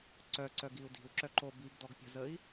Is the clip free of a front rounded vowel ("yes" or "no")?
no